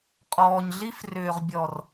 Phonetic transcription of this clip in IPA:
qʼɔː˨ɲɮi˦f rʏː˨ʁbʲɔ˨r

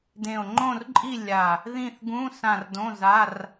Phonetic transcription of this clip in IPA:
dẽ˨˩o̯ŋ͡ǃõ˦˨rǃʼi˦˨ lʲa˨˩ | ðĩ˦˨θɡũ˧˥˧ sã˦˨rdõ˧˥˧za˧˥˧r

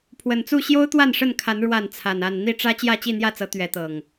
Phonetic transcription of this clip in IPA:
pʰwə˨˩nt͡su˥˨ ɕjo˦ʊ̯t̪wa˥˨nʂə˥˨nkʰa˨˦n ɻwa˥˨n t͡sʰa˨˩na˥˨n n̪i˥˨ʈ͡ʂä˦ t͡ɕjä˥˨t͡ɕi˥˨n̪jä˥˨t͡sɤ˨˦ t̪ɥɛ˨˦t̪ɤ˨˩ŋ

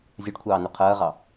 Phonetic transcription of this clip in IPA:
zʲɐɖkʷʰɑːnu qʰɐːʁɑ

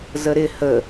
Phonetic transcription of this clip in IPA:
zəɾɪ hə

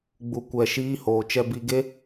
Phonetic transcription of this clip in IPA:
ɡ͡bu˧kʷɛ˧ ʃiː˦hoː˧ t͡ʃɛ˧bi˧ ɡe˦

